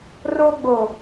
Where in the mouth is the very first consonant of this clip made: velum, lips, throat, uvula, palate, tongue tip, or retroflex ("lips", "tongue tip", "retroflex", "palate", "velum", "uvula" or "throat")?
tongue tip